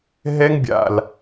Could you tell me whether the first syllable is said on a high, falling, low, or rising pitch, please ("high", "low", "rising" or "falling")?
high